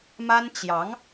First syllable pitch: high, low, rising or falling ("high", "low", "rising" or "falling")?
high